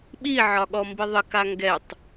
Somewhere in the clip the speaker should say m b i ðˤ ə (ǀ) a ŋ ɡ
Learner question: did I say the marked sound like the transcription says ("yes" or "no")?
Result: no